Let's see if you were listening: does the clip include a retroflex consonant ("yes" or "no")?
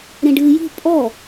yes